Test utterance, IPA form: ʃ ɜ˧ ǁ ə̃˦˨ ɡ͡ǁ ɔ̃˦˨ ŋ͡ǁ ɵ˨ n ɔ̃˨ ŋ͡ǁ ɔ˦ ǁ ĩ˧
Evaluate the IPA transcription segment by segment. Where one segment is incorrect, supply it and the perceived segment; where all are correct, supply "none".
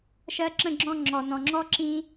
ɵ˨ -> ɔ˨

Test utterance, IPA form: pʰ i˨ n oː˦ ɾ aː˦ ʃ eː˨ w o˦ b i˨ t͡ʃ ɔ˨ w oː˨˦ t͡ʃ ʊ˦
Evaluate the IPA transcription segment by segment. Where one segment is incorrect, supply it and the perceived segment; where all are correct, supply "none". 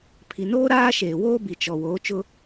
o˦ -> oː˦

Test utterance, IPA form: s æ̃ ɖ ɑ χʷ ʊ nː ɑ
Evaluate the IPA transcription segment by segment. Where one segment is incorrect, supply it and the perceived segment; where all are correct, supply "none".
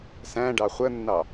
ʊ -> ə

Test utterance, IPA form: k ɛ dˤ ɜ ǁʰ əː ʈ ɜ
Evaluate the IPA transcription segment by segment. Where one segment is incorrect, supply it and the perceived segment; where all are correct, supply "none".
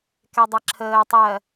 ʈ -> tˤ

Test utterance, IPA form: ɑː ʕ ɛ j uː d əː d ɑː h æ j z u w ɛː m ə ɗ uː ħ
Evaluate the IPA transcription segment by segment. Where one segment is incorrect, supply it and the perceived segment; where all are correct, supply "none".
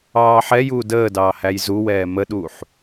ʕ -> ħ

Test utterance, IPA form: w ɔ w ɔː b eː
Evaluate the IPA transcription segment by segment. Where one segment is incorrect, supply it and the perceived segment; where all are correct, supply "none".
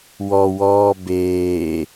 none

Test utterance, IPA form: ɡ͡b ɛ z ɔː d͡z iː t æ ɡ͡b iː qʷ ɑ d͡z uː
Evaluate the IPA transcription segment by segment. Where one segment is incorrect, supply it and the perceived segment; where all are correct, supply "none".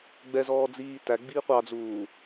none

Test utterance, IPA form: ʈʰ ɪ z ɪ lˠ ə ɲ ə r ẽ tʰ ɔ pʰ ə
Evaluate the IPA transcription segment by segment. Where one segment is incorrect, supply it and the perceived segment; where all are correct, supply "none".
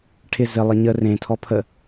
none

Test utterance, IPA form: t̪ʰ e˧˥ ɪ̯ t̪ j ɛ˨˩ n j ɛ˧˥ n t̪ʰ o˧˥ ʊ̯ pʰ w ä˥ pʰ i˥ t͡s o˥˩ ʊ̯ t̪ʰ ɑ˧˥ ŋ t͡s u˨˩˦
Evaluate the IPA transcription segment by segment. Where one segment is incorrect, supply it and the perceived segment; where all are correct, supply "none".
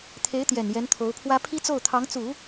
none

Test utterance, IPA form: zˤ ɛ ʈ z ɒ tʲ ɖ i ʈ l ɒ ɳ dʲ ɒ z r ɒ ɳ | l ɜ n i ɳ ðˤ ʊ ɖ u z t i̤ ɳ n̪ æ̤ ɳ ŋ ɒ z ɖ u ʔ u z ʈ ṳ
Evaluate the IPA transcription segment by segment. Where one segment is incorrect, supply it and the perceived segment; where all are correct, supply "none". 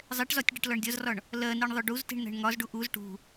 none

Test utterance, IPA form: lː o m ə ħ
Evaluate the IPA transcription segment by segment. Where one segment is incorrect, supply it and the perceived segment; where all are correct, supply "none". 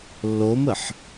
none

